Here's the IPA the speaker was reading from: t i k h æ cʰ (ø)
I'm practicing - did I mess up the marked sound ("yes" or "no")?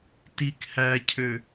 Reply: no